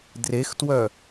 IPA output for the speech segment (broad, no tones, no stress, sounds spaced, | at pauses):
d r e x t w œ